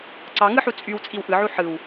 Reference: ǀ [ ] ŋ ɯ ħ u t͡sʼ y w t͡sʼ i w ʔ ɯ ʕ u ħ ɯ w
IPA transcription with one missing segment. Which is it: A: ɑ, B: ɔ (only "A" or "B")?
A